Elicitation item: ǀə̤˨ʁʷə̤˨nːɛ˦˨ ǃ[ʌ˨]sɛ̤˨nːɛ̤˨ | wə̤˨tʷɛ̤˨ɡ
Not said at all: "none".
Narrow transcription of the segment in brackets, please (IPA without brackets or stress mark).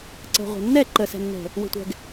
ə˨